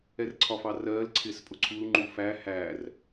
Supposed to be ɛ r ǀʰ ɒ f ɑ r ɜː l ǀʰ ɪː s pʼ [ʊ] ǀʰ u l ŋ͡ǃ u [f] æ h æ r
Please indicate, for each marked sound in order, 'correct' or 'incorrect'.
correct, correct

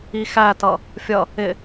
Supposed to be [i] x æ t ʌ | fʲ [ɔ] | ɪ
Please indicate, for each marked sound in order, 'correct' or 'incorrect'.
correct, incorrect: ʌ

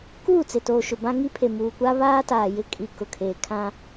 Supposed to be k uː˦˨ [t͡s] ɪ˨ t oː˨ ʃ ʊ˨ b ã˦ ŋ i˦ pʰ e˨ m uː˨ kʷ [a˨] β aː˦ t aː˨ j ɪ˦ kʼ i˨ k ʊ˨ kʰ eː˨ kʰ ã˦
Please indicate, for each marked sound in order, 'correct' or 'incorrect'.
correct, incorrect: a˦

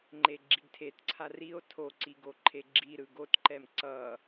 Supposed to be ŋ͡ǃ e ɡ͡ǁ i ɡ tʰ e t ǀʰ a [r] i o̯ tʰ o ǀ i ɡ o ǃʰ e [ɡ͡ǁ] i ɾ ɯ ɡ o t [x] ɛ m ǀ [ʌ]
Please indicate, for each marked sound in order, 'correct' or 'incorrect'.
correct, correct, incorrect: ǃ, correct

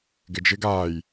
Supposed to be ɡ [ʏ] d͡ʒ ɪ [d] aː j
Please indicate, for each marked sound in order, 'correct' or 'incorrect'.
incorrect: ɪ, incorrect: ɡ

